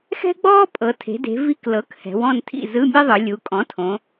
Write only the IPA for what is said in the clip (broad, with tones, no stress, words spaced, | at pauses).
xɛ̤˥ɡ͡bɔː˥ pʼɤ˩˧tʰe̤˩˧ de̤˩˧ vi˧˥˧klɤ˩˥k hɛ̤˩˧wɔ̃˦˨n tʰḭ˦˨zɯ˧˥˧mʲe˥ðˤɯ˩˧ lʲu˩˧kʼɔ̃˩˥tʰõ˩˧